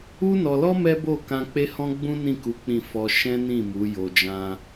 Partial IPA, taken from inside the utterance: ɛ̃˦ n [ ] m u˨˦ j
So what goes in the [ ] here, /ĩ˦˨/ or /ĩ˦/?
ĩ˦˨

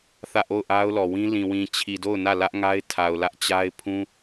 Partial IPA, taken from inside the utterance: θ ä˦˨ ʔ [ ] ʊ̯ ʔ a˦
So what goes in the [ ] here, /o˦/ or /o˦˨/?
o˦˨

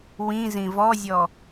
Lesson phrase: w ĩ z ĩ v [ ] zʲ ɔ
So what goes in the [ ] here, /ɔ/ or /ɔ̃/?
ɔ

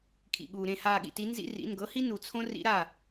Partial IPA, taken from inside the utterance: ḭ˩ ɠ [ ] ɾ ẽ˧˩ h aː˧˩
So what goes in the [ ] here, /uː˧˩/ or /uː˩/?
uː˩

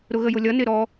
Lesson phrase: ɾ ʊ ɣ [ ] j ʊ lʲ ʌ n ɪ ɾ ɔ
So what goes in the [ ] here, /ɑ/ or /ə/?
ə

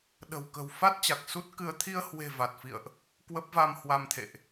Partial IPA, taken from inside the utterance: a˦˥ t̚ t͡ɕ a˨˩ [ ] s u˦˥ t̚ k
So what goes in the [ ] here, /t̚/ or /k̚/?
k̚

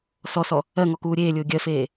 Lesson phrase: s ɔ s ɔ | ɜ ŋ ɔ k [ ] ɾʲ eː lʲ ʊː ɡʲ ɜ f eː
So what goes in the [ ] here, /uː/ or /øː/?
uː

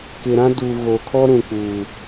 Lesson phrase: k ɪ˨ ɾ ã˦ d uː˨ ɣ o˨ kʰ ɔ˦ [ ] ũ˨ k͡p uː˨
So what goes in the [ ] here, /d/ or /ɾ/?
ɾ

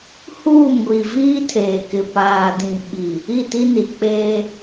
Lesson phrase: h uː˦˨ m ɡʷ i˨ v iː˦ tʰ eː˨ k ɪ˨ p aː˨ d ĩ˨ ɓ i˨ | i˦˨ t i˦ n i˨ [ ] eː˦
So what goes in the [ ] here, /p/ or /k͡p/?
k͡p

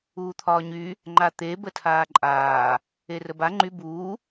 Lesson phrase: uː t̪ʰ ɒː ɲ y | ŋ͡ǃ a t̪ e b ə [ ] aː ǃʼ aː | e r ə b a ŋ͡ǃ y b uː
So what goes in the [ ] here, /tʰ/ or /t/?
tʰ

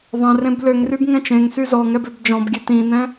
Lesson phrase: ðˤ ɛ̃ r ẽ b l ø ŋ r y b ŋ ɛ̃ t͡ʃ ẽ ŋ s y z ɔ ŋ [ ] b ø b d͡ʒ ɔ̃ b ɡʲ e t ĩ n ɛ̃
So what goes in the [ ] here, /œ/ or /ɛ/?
ɛ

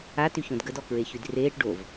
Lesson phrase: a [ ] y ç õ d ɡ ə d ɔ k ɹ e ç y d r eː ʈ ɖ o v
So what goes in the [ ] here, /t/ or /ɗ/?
t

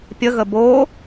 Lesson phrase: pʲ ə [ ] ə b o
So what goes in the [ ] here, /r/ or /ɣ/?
ɣ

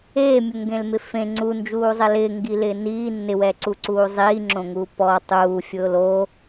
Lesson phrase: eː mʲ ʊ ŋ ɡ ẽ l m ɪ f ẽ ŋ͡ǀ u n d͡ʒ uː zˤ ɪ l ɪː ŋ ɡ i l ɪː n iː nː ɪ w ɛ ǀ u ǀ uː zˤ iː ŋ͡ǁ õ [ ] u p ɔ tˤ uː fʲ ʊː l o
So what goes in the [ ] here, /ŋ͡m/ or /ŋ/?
ŋ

